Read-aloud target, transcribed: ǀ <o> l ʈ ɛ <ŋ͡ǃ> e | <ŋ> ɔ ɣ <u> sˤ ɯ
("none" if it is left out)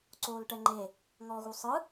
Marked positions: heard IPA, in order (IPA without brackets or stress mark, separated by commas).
oː, ŋ͡ǃ, ŋ, u